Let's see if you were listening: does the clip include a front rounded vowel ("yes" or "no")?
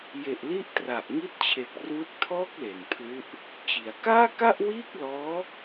no